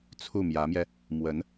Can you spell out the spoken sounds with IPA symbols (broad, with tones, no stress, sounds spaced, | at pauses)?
t͡sʰ u˥˩ m j ä˧˥ m j ɛ˧ | m w ə˧˥ n